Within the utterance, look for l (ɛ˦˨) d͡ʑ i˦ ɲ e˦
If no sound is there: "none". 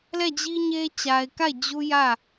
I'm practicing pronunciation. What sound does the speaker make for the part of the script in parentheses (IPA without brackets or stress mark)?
ɛ˦˨